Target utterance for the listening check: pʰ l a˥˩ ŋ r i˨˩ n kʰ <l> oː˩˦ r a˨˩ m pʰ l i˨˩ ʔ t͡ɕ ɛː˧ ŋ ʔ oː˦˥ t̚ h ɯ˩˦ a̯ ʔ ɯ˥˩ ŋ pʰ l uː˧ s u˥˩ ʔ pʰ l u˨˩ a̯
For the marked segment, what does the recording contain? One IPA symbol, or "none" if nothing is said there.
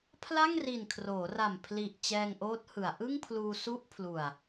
r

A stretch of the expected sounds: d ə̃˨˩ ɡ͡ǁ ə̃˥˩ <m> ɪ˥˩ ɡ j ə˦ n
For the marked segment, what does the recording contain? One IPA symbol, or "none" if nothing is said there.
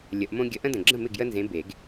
m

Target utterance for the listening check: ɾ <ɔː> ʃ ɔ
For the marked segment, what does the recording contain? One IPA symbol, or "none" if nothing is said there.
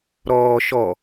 ɔː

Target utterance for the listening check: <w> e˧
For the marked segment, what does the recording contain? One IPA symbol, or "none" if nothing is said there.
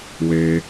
w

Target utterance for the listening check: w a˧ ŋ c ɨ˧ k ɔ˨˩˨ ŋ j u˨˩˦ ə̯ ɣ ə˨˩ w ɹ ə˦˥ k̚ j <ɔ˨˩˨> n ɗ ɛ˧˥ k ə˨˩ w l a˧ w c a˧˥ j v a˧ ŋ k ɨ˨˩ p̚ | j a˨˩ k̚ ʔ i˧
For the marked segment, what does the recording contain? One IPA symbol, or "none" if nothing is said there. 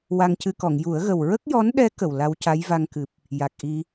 ɔ˧˥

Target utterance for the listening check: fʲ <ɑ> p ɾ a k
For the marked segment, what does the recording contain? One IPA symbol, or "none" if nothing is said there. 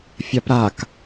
a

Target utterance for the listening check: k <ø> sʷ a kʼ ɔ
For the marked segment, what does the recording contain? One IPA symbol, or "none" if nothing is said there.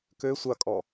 ø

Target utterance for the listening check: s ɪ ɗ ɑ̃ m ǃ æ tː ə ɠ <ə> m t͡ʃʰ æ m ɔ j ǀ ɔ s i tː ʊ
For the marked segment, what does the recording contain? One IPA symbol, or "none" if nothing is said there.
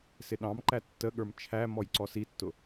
ə˞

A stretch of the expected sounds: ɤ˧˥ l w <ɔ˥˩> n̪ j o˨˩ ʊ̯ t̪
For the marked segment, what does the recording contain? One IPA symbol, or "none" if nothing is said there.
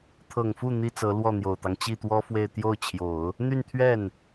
ɔ˥˩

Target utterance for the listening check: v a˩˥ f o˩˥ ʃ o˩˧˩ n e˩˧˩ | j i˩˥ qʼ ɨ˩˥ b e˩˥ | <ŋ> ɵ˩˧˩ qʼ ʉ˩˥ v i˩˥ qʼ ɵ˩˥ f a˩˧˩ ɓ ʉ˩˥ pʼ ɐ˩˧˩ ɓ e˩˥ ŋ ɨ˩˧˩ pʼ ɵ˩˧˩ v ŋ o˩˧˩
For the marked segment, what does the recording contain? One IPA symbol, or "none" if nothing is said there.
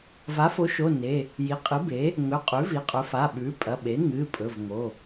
ŋ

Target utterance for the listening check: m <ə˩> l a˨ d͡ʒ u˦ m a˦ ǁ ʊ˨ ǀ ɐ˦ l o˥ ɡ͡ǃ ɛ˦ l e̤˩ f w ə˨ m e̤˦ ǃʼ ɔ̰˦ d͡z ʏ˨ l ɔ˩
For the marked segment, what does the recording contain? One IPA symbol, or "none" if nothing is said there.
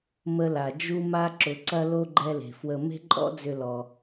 ə˦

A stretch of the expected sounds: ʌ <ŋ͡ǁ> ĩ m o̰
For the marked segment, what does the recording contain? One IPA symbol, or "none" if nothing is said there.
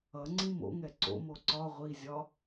ŋ͡ǀ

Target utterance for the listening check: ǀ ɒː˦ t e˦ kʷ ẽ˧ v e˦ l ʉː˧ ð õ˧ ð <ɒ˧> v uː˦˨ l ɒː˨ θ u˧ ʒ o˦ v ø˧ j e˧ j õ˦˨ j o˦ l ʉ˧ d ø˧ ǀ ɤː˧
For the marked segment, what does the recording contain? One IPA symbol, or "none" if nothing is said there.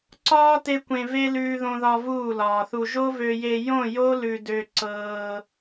ɒ˧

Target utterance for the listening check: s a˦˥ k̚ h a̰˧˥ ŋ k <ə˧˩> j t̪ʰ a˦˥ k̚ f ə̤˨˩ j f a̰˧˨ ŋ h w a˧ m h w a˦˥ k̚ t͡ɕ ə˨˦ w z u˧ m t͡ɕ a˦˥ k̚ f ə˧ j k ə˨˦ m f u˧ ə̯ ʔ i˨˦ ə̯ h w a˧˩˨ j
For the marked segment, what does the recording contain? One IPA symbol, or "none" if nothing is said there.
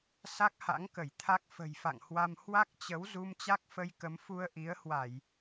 ə˧˩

